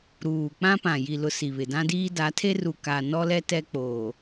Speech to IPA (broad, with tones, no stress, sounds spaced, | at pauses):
ɾ uː˨ k͡p ã˦ p ã˨ j i˨ l ʊ˨ s i˨ β ɪ˨ d ã˦ d iː˦ d a˨˦ tʰ e˦ r u˨ k a˨ n ɔ˦ l ɛ˦ t ɛ˦ k͡p oː˨